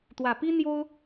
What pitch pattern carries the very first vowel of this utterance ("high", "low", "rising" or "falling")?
low